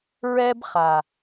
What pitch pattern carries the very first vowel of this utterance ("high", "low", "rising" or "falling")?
high